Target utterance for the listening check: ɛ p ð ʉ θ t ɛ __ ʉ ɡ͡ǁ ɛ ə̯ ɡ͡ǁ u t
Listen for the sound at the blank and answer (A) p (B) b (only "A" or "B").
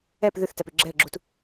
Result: A